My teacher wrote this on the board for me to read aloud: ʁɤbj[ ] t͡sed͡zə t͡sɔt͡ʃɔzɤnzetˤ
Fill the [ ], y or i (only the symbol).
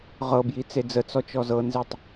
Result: i